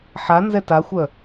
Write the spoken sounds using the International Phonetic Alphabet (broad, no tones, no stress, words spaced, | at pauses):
ħanzɛ taxʷœ